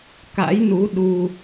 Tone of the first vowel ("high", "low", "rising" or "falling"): rising